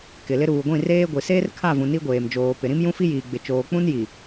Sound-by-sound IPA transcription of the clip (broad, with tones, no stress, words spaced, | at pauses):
kɪ˨lɪ˦ ɾuː˨ɡʷĩ˦˨reː˦ɡʷi˨ seː˦rkʰa˦˨vũ˨ ni˦ɡʷeː˨md͡ʒoː˨ pɪ˨ɾĩ˦m jũ˦fi˦ jiː˨ɡ͡bɪ˨ t͡ʃoː˨k͡pũ˦n ji˨